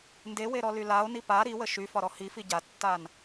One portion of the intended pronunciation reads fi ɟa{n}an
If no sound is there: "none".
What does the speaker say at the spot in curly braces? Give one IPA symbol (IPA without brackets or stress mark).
tː